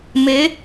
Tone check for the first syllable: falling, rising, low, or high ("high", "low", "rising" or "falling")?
rising